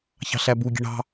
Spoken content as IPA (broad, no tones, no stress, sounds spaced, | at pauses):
ç ɑ̤ ɬ æ b u ɡʲ e̤ ɳ ɑ̤